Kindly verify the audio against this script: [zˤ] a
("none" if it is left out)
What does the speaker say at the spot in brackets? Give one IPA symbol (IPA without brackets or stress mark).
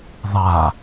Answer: ðˤ